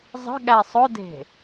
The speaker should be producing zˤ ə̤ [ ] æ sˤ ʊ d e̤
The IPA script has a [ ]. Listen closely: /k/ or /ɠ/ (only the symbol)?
ɠ